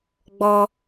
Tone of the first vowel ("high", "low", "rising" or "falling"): high